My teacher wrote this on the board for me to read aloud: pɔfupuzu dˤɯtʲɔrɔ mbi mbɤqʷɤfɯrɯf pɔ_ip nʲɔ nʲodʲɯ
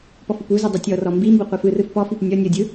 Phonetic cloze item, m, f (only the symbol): f